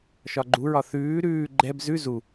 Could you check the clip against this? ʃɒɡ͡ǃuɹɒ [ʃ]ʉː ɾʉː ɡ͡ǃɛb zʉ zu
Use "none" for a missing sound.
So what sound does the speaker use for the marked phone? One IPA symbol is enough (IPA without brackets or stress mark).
θ